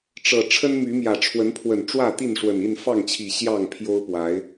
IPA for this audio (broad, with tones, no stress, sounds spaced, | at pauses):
ʈ͡ʂ ɤ˨˩ ʈ͡ʂʰ ə˦ n m y˨˦ m j ä˨˩ ʈ͡ʂʰ w ə˨˦ n pʰ w ə˨˩ n ʈ͡ʂ w ä˥˨ t̪ i˥˨ n ʂ w ə˨˩ n i˥˨ n f ɑ˥˨ ŋ t͡ɕʰ i˨˩ ɕ j ɑ˥˨ ŋ pʰ j o˦ ʊ̯ p w a˨˦ ɪ̯